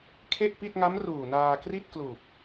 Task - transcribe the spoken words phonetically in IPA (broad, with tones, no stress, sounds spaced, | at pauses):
kʰ e˥˩ ʔ p i˥˩ t̚ ŋ a˦˥ m r uː˨˩ n aː˧ k r i˥˩ t̚ k l uː˨˩ p̚